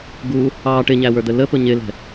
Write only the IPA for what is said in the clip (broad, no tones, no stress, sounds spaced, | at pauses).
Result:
ɡ u | ɑ ʈ ɪ ɲ æ w ə˞ d̪ ə l ə p ʊ ɲ ɪ l ɛ̤